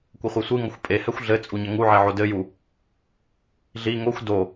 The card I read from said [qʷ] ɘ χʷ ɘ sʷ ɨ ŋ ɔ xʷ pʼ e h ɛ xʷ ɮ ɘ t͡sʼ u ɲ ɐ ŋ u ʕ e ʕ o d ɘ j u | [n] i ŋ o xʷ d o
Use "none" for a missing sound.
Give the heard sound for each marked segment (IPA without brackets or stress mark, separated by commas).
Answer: kʷ, ɮ